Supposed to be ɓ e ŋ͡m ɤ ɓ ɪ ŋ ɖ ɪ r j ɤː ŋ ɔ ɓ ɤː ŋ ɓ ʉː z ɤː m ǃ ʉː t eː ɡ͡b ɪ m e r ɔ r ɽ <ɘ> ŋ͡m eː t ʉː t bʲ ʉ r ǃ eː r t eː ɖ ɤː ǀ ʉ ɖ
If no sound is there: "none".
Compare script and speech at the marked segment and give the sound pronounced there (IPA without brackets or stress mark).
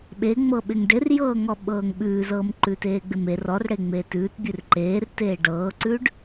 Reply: e